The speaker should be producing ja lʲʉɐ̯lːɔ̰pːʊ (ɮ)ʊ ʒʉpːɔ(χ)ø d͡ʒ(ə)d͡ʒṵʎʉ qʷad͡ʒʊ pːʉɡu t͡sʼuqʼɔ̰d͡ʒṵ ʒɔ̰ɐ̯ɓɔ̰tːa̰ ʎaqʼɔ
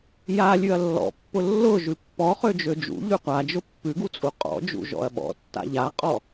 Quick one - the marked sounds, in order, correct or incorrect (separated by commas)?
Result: incorrect, correct, incorrect